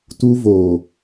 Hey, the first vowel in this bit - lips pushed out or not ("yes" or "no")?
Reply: yes